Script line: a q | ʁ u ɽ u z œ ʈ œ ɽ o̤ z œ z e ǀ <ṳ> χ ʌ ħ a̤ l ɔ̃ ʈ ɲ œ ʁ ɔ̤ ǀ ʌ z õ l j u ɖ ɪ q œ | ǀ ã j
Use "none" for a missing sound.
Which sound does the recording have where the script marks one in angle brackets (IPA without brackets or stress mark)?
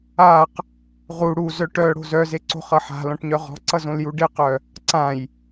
o̤